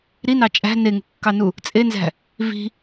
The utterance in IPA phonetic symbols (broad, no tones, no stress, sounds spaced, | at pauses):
ɾ i n ɑ t͡ʃʼ æ̤ n e ŋ ṳ kː ɑ n u | t͡sʼ e n z æ̤ | v i̤